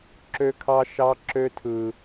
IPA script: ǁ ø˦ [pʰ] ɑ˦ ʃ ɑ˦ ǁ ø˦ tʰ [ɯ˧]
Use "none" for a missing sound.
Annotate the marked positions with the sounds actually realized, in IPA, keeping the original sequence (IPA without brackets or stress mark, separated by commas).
kʰ, ɯ˧